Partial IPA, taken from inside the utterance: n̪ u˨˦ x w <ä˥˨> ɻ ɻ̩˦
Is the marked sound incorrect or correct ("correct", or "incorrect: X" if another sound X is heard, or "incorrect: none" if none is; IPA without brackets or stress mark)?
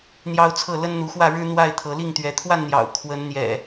correct